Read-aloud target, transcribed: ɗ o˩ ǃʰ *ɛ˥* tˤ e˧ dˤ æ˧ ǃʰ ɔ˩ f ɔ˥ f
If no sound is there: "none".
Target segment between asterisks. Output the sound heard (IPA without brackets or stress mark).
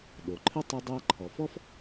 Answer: ɘ˥